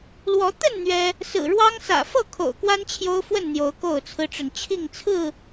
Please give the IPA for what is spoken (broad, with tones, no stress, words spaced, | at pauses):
lwɔ˨˦t̪ə˥˨n n̪ɥɛ˦ | sɹ̩˨˩ɻwɑ˦ŋsä̰˨˩ fɤ˥˨kʰo̰˨˩ʊ̯kwa˦n t͡ɕʰjo˦ʊ̯fwə˥˨nn̪jo˨˦ʊ̯ ko˥˨ʊ̯t͡sʰɹ̩˦ʈ͡ʂə˨n t͡ɕʰi˥˨ŋt͡sʰɹ̩˥˨